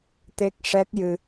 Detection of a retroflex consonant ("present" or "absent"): present